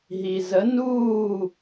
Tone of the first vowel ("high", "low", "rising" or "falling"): low